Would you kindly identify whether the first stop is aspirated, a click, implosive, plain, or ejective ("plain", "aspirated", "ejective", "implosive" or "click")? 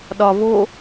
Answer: implosive